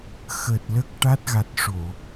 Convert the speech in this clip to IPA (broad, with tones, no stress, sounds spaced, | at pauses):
x əː˨˩ t̚ l əː˦˥ k̚ ʈ a˦˥ t̚ ɣ a˨˩ t̚ ʂ o˨˩˨